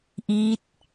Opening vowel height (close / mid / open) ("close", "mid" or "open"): close